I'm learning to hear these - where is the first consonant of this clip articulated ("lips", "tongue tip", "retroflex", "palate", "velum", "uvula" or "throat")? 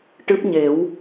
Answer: retroflex